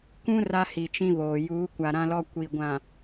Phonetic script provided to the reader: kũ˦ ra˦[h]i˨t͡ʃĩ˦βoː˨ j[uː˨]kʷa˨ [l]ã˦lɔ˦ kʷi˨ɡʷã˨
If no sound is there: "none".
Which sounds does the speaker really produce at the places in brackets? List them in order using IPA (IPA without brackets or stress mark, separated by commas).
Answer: h, uː˨˦, ɾ